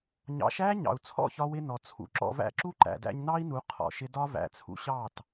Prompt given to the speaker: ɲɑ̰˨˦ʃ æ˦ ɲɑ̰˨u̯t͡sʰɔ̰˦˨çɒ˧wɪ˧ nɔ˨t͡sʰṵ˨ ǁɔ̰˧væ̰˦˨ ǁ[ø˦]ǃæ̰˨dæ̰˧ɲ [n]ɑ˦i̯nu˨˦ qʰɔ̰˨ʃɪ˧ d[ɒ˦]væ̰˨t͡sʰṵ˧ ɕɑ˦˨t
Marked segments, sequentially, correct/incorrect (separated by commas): incorrect, correct, correct